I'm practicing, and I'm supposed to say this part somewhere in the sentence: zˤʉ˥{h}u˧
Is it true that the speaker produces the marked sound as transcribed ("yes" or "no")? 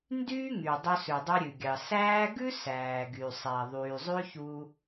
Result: no